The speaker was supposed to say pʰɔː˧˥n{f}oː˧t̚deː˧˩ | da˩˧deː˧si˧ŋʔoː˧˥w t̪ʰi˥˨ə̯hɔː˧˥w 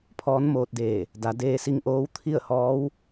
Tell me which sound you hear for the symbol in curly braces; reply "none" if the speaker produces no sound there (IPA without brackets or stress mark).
m